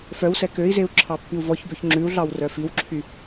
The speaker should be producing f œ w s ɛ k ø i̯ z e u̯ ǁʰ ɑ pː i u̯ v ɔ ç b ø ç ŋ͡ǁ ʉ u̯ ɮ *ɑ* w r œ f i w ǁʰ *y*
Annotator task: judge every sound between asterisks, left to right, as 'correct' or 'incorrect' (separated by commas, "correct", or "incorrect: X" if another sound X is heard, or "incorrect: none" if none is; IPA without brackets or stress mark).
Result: correct, correct